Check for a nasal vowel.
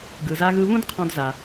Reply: present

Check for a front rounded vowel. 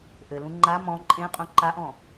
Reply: absent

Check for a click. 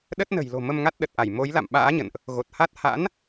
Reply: absent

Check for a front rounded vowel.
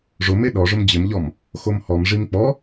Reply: absent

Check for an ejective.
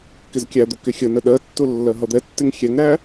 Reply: absent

